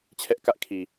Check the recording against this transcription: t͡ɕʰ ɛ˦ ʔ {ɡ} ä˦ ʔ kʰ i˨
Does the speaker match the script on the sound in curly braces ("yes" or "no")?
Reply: no